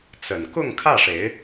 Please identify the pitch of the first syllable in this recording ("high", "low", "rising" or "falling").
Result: low